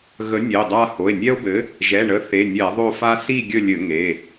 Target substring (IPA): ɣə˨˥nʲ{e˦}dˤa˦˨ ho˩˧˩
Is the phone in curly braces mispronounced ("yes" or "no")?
yes